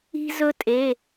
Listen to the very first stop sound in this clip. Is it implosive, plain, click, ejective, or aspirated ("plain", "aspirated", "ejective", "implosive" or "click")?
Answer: ejective